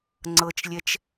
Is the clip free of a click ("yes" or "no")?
no